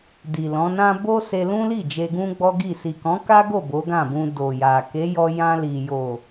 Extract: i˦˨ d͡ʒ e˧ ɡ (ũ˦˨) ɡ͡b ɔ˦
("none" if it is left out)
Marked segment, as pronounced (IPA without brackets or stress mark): ũ˦